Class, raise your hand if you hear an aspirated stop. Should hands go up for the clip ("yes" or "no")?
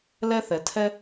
yes